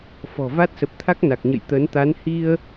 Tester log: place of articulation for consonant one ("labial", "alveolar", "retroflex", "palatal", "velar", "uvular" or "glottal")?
labial